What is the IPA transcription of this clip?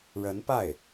ɻ ə˧˥ n p a˥˩ ɪ̯

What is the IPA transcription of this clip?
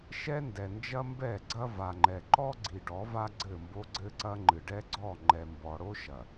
ʃ ɛ˦ n d ɛ˨ n d͡ʒ ɐ˦ m b ɛ˦˨ ɡ͡ǀ ɐ˦ v a˨ ŋ͡ǃ ɛ˨ ǃ ɔ˦ ɡ͡ǀ i˨ ɖ ɔ˨˦ v a˦ ɡ͡ǀ ɘ˦˨ m b o˦ ɡ͡ǀ ɘ˦ ǀ ɐ˦ ŋ͡ǃ ɨ˨ ɖ ɛ˦ ɡ͡ǀ ɔ˦˨ ŋ͡ǃ ɛ˨ m b ɔ˨ ɽ o˦ ʃ ɐ˨

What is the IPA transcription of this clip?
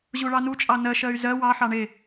ʑ u ɭ ɑ n u t͡ʃʼ ɑ n ɜ ʃ ɜ y̯ z ɜ w ɑ ħ ɑ ɳ e

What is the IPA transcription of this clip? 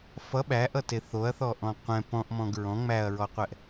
f ʌ ɓ æ ʔ ʌ t e θ o ɐ̯ θ ɔ ʔ ɔ̃ qʷ ɛ̃ p ɔ̃ ʔ m ɔ̃ ɡ ɹ ɔ̃ ŋ͡m æ ɐ̯ ɹ ɔ qʷ ɛ ʔ

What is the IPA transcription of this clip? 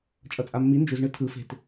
t͡ʃʼ ʌ t͡sʼ a mː i n d͡ʒ u z ɳ ɯ tʰ ɯ f e̤ t

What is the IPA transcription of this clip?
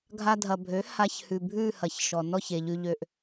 ɡʱ a˧ dʱ ɐ˨ bʱ ø˨˦ h a˧ ç h ʉ˨ bʱ ʉ˦˨ h ɐ˨ ç ʃ ɔ˨ n ɔ˦˨ ç e˨ ʎ ʉ˧ ʎ ø˧ ʔ

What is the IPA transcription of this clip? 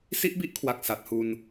s i˦˥ ʔ b i˦˥ ʔ kʰ w a˨˩ k̚ s a˨˩ t̚ h u˧ n

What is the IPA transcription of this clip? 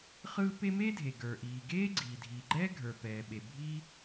χ ɯː˥ p e˥ m e˥ dʱ e˩ ɡ ə˞˩ ʔ iː˩ ɡ eː˥ ɡ͡ǀ iː˩ dʱ iː˩ ɡ͡ǃ ɛː˥ ɡʱ ə˞˩ p ɛː˩ ɓ e˩ bʱ iː˥

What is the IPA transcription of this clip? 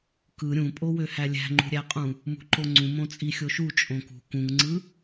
k ɯ ɾʲ ũ pʼ o w ø h æ lʲ æ̤ ŋ͡ǃ ṳ ɾʲ æ qʼ ũ | m ṳ ǃ o ŋ͡ǀ ũ m õ t͡sʼ i xʲ o ʃ u t͡ʃʼ õ k ṳ k ũ ŋ ŋ͡ǀ ɯ

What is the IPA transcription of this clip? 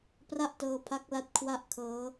p r a˥˩ ʔ t ɤː˧ pʰ a˦˥ k̚ l a˦˥ t̚ kʰ w a˥˩ ʔ kʰ ɤː˦˥

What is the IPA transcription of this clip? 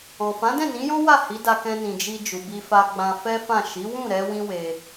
ɔ̃˨ f ã˨˦ d ɛ̃˦˨ n ĩ˨˦ j ɔ̃˦ w a˦˨ h i˨˦ d a˧ k ɛ̃˧ n ĩ˨ d͡ʒ i˧ d͡ʒ u˨ b i˧ f a˧ ɡ͡b ã˧ f ɛ˦ f ã˦˨ ʃ i˨˦ w ũ˦˨ ɾ ɛ˧ w ĩ˧ w e˧

